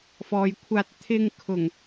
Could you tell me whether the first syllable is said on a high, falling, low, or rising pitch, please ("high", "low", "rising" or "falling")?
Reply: low